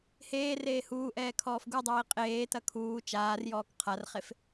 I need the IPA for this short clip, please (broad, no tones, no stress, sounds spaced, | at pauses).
h eː r eː h uː ʔ ɛː kʰ ɔː f ɡ u dˤ iː qʼ eː t ɐ kʰ uː t͡ʃ aː r j ɔː k qʰ a r χ e f